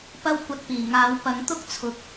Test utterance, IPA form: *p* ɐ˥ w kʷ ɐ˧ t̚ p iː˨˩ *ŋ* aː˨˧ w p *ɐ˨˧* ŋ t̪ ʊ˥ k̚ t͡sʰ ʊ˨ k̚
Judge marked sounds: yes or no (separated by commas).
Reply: yes, yes, yes